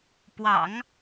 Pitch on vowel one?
low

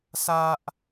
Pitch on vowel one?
high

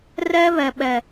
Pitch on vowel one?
high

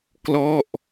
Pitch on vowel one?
falling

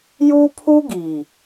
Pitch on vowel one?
high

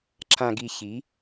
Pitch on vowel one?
low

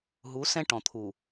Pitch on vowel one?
rising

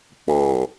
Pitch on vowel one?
low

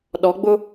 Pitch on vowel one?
rising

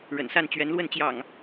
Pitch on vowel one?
low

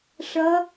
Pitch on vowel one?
rising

